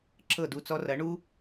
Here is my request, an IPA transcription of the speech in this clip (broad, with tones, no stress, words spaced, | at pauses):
ǁɤ˥˩du˥˩t͡sɔ˥ rɐ˩˥ɳu˥